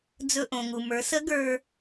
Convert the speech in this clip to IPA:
d͡z ɵ˧ ʔ õ˩ ŋ u˩ m ə˞˩˧ s ə˧˥ ɡ ə˞˧

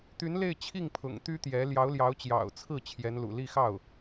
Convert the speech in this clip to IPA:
t̪ y˧˥ n l e˥˧ ɪ̯ t͡ɕʰ i˥˩ ŋ pʰ ʊ̰˨˩ ŋ t̪ y˥ t̪ j ɛ˧˥ l j ɑ˧˥ ʊ̯ l j ɑ˧˥ ʊ̯ t͡ɕ j ɑ̰˨˩ ʊ̯ t͡sʰ ɹ̩˥˩ t͡ɕʰ j ɛ˧˥ n l ṵ˨˩ l i˥˧ x ɑ˥˩ ʊ̯

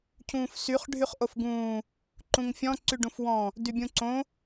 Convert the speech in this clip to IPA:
cʰ ũː f s y χ ɖʱ y χ ʔ o f ɡ ũː | ǃ ũ ŋ fʲ ɔ̃ ǀ y ɖ ũ f w ɔ̃ | d y bʲ ũ ǀ õ

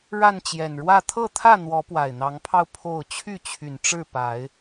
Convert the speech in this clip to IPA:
ɻ a˥˨ n t͡ɕ j ɛ˨˩ n ɻ w ä˥˨ t̪ʰ ɤ˥˨ t̪ʰ ä˥˨ n̪ w ɔ˨˦ p w a˨˩ ɪ̯ n̪ ɑ˨˦ ŋ pʰ ɑ˧ ʊ̯ pʰ o˥˨ ʊ̯ t͡ɕʰ y˥˨ t͡ɕʰ y˨˩ n ʈ͡ʂ ɻ̩˥˨ p a˨˦ ɪ̯

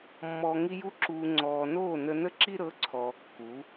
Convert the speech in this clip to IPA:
mː ɔː˨ ŋ i˧ j u˧ ǁ uː˨ ŋ͡ǀ ɔː˨ n oː˦˨ n ə˧ n ə˦ ǁ i˦ ɾ ɤ˨˦ ǀʰ ɔː˨ kː u˨˦

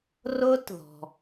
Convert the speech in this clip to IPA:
r ʊː˥ t ð ɔ̤˩

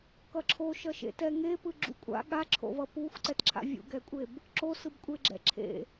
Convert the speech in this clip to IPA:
k ʌ ǁʰ o ʃ ʌ ʃ ḛ t ɛ ŋ e p ɯ ɡ͡ǁ ṵ kʷʼ a̰ ɠ a ǁʰ o̰ v ʌ p u xʷ ǀ ɛ t ǁʰ a̰ vʲ ṵ ɡ ɛ kʷʼ e b | ǁ o s ɯ b kʷʼ e ɡ͡ǁ ɛ̰ ǁʰ ḛ

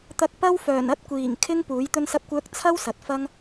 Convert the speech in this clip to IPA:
t̪ ɐ˧ k̚ p ɐ˥ w f œː˨˩ n ɐ˥ t̚ kʷ iː˨˩ ŋ kʰ ɪ˥ ŋ p uː˨˥ j t̪ ɵ˥ n s ɐ˥ p̚ kʷ œː˥ k̚ t͡sʰ ɐ˥ w s ɐ˨˥ t̚ f ɐ˥ ŋ

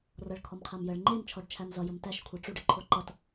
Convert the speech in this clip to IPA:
r ʌ ɭ kʰ ɔ m qʰ æ m j ə ɭ ŋ͡ǃ e m t͡ʃʰ ɔ ɖ t͡ʃʰ æ m z ʌ j ə m t æ ʃ kʷʰ a ʈ͡ʂ u ɖ ə ǃʰ o ǃ ʌ t

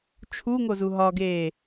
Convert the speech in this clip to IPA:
t͡ʃʰ u ŋ o z u ɦ ɒ ɡ eː

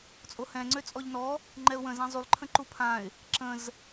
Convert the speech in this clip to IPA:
t͡sʼ o h ɛ̃ ŋ͡ǀ ø t͡sʼ ɔ ʎ n ɔ | ŋ͡ǃ ɛ ʊ̯ w ə̃ z ã zˤ y lˠ ǃʰ ə̃ ǃ u pʰ ã ɪ̯ | ǁ ə̃ z

